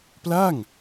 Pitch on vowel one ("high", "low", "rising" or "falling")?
falling